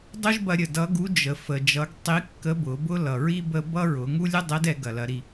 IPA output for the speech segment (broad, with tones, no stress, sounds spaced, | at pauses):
dˤ o˥ ʒ b ɐ˧ ɾʲ ə˩ d ʌ˧˥ ɡ u˧˥ d͡ʒ ə˩ f ə˩ d͡ʒ ʌ˩˧ ɡ tˤ i˧˥ kː ə˧˥ b ʊ˩˧ b ʊ˥ l ʌ˩ ɹ i˥ b ə˥ b ʌ˥ ɹ ʊ˩˧ ŋ u˥ lʲ ɛ˥ dˤ ɛ˧˥ d ɛ˩˧ ɡ ɐ˩ l ɐ˩˧ ɾ i˩